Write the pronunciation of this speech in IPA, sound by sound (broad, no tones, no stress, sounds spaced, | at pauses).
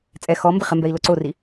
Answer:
t͡sʼ ɛ x ɔ m b ɪ χ ɪ m b ɛ i̯ l o ǀ o r i